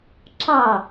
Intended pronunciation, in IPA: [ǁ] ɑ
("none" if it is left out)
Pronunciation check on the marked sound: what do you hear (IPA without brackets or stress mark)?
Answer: ǁ